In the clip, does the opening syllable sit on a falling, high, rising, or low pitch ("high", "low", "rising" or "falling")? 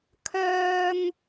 high